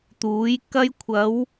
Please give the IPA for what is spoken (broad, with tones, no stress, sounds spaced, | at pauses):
t̪ uː˨˥ j k ɐ˥ j kʷʰ ɐ˨˧ w